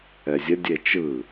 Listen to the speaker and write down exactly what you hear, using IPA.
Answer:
ɛ zʲ ə dʲ e t͡ʃ ɯ

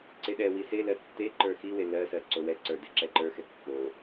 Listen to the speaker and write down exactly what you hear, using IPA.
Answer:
ǀ e ɗ ɛ w i s e l ɜ tː e ǃ ə˞ x i w e l ɜ s ɜ ǀ o w ɛ ǀ ə˞ d e ǁ ɛ ǃ ə˞ x ɛ kː o

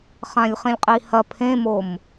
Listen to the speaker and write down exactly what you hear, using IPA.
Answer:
χ ã lʲ χ ĩ lʲ qʼ i h ɐ pʰ ẽ m o m

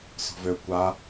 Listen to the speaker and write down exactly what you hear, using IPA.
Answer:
s ɔ̤ v ø kʷ a

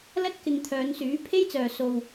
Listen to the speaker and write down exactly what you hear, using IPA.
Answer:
l ɐ˥ t̚ k ɪ˨ ŋ t̪ʰ œː˨˧ n s yː˨˥ pʰ e˥ j t͡s œː˨ s o˨ w

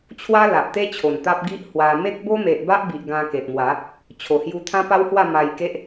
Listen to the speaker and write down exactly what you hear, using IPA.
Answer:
t͡ɕʰ w a˦ l a˨ ʔ t̪ e˦ t͡ɕʰ o˨˩ n t̪ a˦ p̚ ɡ i˦ ʔ h w a˧ m e˦ k̚ b o˦ m e˨ ʔ b a˦ ʔ b i˨ ʔ ɡ ã˧ k e˨ t̚ m w a˨˦ | t͡ɕʰ o˨˩ h j u˧ t̪ʰ ã˦ p a˦ w h w a˥˧ m a˧ j k e˦ ʔ

